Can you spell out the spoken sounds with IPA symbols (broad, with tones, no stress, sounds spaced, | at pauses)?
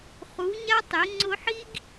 χ u˨˦ ɲ a˦ tˤ e˨˦ ŋ͡ǀ ʊ˧ ħ i˦ ɡ